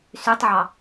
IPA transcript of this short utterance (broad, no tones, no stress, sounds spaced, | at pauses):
s y tˤ ʕ ɑ